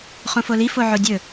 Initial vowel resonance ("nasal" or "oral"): nasal